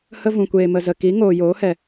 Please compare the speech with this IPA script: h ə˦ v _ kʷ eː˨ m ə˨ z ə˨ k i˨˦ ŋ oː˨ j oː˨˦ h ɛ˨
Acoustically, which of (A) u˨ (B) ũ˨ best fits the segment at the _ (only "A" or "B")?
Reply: B